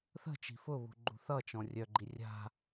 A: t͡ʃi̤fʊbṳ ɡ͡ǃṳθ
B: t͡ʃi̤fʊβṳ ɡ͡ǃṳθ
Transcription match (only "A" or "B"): B